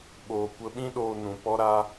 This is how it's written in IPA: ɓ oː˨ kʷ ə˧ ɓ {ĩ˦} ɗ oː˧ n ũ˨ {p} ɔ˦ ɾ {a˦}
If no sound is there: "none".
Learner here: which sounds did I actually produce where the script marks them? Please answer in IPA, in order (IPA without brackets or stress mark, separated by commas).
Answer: ĩ˦, p, a˦